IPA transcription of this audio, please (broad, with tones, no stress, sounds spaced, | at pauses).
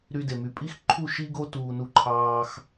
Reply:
ɾ y˧ d e˨ m y˨ pʼ i˦ x ǃʰ u˦˨ ʃ i˦ ɡ o˦ t uː˧ n u˦˨ ǃʰ ɑː˧ x